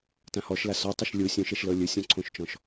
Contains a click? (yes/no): yes